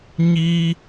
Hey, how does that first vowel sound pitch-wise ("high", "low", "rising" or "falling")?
high